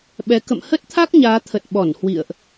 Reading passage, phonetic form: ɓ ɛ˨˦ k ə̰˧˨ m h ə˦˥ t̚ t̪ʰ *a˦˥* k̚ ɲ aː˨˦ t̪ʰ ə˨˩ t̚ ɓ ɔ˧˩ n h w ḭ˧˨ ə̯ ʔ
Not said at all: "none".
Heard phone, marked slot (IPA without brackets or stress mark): a˦˥